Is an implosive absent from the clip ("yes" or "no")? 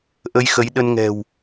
no